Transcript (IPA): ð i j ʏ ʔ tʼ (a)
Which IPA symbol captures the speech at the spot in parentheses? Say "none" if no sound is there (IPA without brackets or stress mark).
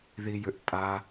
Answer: a